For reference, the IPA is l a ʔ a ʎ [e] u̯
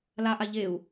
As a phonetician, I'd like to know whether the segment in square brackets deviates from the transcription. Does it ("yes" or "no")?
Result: no